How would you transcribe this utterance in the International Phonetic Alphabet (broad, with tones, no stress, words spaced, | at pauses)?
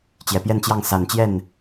t͡ɕjɛ˨˩pjɛ˥˧nt͡ɕjɑ˥˩ŋ sa˨˩nt͡ɕjɛ˥˩n